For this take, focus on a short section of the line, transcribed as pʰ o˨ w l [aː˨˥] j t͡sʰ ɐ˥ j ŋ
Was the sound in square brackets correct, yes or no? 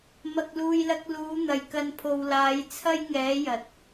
yes